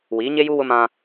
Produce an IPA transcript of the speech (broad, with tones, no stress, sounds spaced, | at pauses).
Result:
w iː˨˦ ɲ e˦ j u˦ w ʊ˦ m ã˦